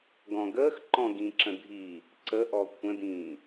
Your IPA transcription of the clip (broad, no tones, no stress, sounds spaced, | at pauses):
ɡ ɔ̃ ɡ əː x ǃ ɔ̃ ɡ ĩ ǁ ə̃ dʱ i | ǀ ə ʔ ɔ kʷʰ ə̃ d ĩː